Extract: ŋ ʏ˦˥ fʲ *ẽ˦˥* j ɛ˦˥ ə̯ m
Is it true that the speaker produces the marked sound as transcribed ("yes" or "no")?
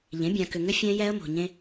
no